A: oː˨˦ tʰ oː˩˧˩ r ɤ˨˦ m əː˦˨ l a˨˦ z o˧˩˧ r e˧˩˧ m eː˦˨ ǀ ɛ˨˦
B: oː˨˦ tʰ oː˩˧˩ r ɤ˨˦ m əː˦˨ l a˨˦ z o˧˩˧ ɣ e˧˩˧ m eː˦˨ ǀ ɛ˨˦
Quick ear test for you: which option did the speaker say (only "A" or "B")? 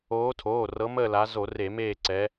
A